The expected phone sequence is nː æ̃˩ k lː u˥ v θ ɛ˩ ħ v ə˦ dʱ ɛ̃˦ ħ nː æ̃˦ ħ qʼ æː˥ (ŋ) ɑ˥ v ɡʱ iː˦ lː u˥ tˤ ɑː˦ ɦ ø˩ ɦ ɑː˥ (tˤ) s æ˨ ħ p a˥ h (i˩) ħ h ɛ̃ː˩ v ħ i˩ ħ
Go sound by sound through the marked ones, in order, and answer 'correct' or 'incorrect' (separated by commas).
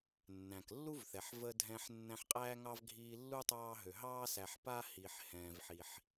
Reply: correct, incorrect, correct